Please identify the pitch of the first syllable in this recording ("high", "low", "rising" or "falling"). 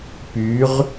rising